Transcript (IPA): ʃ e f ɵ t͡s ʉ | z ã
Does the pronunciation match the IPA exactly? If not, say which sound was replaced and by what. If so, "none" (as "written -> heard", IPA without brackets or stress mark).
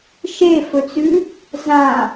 none